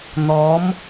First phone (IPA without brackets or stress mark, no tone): n̪